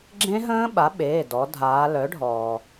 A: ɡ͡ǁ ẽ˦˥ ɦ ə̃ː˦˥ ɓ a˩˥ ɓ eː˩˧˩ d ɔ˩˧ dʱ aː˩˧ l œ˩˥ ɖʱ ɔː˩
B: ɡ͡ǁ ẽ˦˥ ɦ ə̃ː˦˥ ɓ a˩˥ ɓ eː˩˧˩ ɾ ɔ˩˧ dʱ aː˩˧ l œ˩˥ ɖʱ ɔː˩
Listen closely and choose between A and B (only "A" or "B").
A